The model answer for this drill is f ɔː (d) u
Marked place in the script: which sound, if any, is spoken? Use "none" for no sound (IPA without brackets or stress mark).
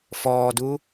d